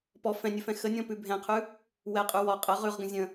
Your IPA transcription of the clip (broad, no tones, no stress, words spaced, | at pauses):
pɔ fɛ̃nʲɵfɛ̃ xənʲɔ̃pʉ bʱɛ̃qʰʉ | wɛqʼʉ wɔ qʼə ʁʉʁɡə̃ zʲə̃